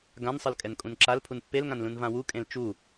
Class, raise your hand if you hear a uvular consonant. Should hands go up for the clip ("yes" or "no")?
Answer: no